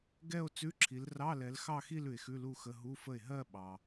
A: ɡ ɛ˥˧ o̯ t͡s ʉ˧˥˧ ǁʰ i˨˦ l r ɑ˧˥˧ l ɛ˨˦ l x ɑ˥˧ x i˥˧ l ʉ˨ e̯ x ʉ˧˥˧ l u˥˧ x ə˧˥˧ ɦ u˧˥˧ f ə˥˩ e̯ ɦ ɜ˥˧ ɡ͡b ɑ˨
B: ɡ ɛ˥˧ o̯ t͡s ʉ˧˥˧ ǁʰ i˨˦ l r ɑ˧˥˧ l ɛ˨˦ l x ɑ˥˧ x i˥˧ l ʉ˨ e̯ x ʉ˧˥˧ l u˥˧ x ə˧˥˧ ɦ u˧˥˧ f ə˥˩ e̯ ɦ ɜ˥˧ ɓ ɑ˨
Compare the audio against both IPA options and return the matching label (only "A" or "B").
B